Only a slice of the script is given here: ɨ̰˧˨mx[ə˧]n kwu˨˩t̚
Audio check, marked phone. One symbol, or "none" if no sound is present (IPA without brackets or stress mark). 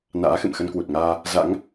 ə˧